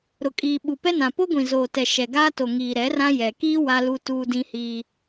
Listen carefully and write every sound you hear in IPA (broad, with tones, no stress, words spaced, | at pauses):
ɾʊ˨kʼiː˨ ɓu˨pɛ˦nã˨ po˦ɡʷĩ˨zoː˨tɛ˨ ʃɛ˨ɡaː˦to˨ŋiː˨ ɾɛ˨˦rã˦ jɛ˨ kiː˦ wa˦lu˦ tuː˦dĩ˦hiː˦